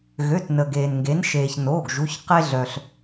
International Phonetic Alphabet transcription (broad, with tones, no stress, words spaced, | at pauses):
ɣø˩˧˩tnə˩ ɡeː˩nŋɡe˩˧nʃeː˩ç noː˩˧˩ɡʒu˩˧˩ç qe˧ɮœ˩ɬ